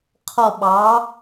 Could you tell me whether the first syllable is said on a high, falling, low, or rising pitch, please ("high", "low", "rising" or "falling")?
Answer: falling